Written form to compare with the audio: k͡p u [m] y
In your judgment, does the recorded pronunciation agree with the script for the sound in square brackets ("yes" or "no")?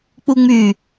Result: no